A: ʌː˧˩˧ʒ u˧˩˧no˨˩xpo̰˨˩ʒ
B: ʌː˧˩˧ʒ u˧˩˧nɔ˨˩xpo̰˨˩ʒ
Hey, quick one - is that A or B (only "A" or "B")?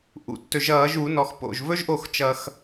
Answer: B